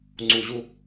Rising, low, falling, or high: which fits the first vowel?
low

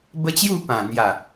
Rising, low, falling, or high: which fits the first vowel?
high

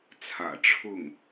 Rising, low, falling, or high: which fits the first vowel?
low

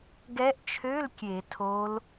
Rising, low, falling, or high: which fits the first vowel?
rising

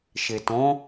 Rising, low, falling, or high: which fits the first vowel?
low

